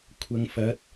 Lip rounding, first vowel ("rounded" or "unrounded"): unrounded